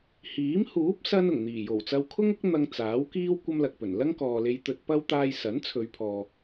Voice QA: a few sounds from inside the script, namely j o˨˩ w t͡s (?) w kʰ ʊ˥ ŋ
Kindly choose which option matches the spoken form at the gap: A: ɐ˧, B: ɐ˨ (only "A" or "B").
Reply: A